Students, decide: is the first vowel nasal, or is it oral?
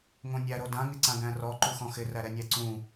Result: nasal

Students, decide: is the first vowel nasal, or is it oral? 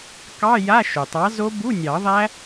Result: oral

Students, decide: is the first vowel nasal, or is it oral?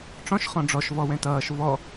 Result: nasal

